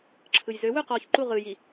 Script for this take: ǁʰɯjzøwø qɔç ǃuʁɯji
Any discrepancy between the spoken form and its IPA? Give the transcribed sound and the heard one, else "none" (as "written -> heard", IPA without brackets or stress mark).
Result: none